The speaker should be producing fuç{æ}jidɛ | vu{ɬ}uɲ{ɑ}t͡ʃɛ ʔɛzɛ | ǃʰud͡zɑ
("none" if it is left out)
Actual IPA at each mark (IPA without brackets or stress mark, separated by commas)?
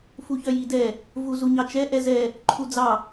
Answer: œ, z, ɑ